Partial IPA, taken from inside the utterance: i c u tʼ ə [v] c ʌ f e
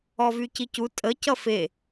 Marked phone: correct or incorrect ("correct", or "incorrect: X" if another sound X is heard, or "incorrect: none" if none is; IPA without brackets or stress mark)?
incorrect: none